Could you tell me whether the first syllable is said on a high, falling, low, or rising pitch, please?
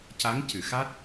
rising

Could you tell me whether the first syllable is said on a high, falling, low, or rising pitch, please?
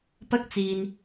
high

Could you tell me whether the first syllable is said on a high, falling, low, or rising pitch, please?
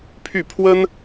falling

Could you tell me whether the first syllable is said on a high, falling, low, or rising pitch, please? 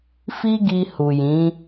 high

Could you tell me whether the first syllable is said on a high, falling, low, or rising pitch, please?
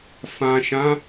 low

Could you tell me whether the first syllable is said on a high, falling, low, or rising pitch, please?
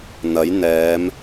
rising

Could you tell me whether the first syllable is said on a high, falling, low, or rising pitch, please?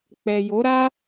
low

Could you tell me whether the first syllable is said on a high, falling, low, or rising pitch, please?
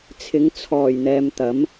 rising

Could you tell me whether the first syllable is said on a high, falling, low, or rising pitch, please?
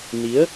rising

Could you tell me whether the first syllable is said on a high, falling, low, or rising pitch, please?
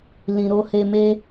low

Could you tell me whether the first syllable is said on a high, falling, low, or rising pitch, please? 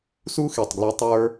high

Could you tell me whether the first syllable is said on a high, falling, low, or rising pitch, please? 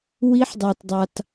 rising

